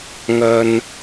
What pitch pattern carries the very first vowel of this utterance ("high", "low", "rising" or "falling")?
low